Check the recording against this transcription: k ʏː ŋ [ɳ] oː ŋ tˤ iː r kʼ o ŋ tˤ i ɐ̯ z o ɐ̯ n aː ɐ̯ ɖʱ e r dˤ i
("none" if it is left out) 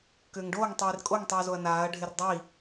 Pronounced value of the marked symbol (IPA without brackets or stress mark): ɖ